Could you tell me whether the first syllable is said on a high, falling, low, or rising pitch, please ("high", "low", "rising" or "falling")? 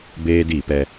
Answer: high